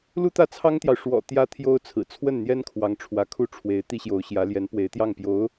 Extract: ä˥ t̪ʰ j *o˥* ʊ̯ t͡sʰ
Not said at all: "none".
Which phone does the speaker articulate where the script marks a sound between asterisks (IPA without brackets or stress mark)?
o˥